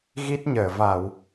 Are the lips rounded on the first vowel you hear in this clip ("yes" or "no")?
no